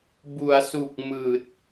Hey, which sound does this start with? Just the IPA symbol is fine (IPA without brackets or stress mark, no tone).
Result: b